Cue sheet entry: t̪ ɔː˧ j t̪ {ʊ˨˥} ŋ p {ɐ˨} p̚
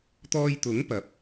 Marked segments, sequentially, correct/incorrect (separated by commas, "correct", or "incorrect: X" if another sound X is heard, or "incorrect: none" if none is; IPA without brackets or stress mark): correct, incorrect: ɐ˨˥